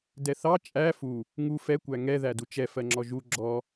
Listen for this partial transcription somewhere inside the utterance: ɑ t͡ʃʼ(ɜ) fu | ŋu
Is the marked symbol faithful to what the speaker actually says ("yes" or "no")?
no